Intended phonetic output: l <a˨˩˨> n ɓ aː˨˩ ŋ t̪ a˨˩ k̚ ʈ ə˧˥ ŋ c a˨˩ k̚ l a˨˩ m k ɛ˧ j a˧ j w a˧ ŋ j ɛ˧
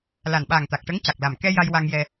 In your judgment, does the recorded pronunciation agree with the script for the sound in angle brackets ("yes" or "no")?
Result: no